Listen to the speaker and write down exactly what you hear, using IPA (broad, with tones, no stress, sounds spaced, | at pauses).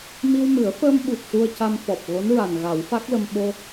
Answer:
m i˧ w m ɨ˨˩˦ ə̯ f əː˧ m ɓ u˨˩ t̚ s u˧ ə̯ c a˧ m f ɔ˨˩ p̚ ɣ o˧˥ n ɹ a˨˩ n ɣ a˨˩˦ w f a˦˥ k̚ l ə˧ m ɓ o˧